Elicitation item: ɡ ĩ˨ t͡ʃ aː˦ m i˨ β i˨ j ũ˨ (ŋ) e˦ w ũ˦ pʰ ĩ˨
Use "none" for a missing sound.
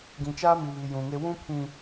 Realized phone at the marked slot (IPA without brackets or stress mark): ŋ